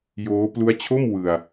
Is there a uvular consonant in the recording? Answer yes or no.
no